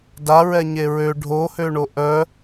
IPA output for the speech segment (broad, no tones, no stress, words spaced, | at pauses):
daɹɛ ɲeɹø ɖʱohøɳo ʔœ